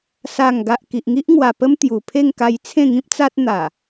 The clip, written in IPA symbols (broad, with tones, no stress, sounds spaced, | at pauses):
s a˨˩ ŋ ɡ a˨ ʔ k i˨ ʔ ŋ i˦ ʔ ŋ w a˨˩ p ə˦ m t̪ j u˨˩ pʰ e˥˧ ŋ k a˧ j t͡sʰ ẽ˥˧ ŋ ĩ˦ p̚ t͡s a˦ t̚ n̪ a˨˩